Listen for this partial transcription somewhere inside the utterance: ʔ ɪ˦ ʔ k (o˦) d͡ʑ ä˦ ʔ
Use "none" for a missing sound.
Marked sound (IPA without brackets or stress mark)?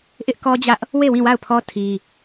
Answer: ɔ˦